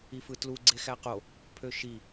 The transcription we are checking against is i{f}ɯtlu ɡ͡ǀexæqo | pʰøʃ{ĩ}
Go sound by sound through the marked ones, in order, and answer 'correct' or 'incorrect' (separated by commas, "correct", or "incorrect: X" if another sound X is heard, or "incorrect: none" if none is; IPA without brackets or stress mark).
correct, incorrect: i